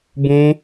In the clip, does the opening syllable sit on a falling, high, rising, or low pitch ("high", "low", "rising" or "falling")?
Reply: high